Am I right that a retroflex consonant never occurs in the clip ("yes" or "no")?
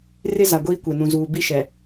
yes